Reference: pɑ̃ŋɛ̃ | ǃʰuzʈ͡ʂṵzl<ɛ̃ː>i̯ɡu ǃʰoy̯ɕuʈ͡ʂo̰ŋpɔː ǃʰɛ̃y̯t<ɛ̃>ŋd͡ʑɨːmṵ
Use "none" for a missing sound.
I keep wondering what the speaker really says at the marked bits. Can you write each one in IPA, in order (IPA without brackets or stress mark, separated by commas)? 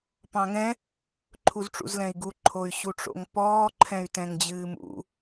ɛ̃, ɛ̃